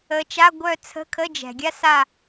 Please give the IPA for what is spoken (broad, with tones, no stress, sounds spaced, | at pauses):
ə˨˦ t͡ʃ a˧˥˧ ɡʷ œ˦˨ t͡sʰ ə̤˧˥˧ kʰ ə˧˥˧ d͡ʒ ɛ̤˩ ɡʲ a˥ s a˦˨